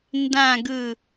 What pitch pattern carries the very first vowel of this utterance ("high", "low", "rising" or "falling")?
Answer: falling